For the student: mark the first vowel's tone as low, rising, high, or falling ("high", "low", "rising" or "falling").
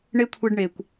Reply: high